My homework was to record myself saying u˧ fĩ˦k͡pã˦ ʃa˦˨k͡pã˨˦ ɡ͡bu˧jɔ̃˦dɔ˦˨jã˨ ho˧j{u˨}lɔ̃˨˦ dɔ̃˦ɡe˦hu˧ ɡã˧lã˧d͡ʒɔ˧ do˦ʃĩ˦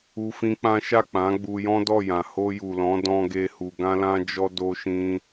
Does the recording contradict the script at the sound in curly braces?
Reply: no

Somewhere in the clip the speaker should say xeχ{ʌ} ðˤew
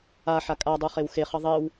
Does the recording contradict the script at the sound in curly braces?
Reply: no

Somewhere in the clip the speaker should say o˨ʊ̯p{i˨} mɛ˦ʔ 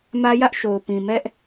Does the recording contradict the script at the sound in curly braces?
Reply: yes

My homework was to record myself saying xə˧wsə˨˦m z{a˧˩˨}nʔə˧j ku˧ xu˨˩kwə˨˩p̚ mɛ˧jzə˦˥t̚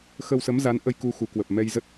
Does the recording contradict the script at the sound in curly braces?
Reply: yes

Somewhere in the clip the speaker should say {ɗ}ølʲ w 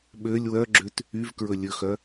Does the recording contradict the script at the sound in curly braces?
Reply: yes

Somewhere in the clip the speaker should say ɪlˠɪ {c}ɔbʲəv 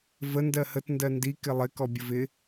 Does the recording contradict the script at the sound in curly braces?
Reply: yes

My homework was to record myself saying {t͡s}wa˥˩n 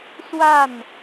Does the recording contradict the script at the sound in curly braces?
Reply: yes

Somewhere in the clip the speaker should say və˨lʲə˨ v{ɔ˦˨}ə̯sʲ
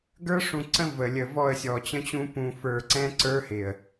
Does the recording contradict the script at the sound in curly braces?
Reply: no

